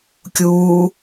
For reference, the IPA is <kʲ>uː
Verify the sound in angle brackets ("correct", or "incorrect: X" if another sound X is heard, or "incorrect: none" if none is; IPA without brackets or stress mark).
correct